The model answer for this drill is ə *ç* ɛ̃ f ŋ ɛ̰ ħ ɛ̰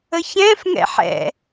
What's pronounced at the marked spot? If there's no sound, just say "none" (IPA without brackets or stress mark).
ç